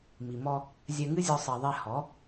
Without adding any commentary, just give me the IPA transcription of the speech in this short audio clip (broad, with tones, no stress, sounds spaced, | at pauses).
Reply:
m i˨ m ɔ˧ | zʲ ɛ˧ ŋ ɨ˦ zʲ ɔ˧ sˤ e˨ ðˤ ɛ˧ h ɔ˨˦